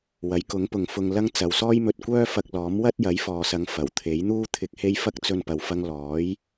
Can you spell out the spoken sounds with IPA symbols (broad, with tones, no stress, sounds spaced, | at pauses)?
w ɐ˨˥ j k ʊ˨˥ ŋ p ʊ˨˧ ŋ f ʊ˧ ŋ l ɐ˥ ŋ t͡s ɐ˨˧ w s ɔː˥ j m ɵ˧ t̚ kʷ œː˥ f ɐ˧ k̚ l ɔː˨˥ m w ɐ˥ t̚ j ɐ˨˥ j f ɔː˨ s ɐ˨˧ ŋ f ɐ˨˩ w t̪ʰ e˨˥ j n̪ uː˥ t̪ʰ ɪ˨˥ k̚ h e˧ j f ɐ˥ k̚ t͡s ɵ˧ n p ɐ˨ w f ɐ˧ ŋ l ɔː˨˥ j